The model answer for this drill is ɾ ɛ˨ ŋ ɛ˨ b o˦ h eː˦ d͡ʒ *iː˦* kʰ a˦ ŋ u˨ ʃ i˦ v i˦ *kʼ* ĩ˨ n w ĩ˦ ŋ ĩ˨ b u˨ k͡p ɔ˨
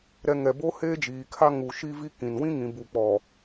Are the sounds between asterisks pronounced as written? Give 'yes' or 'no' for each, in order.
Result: no, no

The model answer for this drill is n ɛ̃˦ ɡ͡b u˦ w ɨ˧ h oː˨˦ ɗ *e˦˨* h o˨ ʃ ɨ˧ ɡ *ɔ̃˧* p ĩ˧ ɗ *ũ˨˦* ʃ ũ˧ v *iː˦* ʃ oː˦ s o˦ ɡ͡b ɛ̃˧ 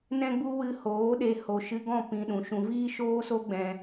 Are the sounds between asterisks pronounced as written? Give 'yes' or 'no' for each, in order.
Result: no, no, no, yes

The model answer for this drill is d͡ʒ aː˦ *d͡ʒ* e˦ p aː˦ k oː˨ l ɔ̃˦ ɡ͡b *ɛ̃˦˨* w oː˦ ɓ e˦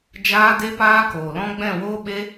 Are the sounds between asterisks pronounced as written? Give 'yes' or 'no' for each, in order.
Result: no, yes

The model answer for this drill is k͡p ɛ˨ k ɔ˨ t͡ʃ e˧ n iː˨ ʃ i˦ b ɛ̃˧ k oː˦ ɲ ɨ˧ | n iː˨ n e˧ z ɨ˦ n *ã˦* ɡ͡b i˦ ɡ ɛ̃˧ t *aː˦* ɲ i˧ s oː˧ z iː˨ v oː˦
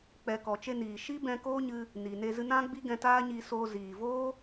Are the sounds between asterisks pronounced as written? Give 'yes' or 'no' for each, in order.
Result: yes, yes

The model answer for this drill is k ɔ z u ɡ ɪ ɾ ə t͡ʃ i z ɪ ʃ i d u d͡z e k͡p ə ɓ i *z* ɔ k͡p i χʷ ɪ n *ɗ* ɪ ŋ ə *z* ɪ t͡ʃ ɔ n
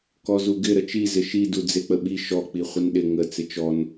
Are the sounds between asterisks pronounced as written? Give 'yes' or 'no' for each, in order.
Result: no, yes, no

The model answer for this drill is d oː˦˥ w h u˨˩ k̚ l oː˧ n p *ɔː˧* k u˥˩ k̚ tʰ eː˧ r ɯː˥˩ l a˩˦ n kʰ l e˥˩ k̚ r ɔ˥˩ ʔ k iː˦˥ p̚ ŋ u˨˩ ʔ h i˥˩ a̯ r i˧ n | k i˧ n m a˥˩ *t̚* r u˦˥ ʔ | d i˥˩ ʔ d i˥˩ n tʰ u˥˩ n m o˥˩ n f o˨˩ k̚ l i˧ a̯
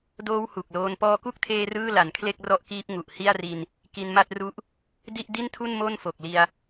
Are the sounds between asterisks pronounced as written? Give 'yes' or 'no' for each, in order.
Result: yes, yes

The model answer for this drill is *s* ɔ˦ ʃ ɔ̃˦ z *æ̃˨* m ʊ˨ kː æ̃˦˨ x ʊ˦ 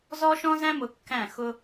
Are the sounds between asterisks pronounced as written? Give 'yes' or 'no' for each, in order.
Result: no, no

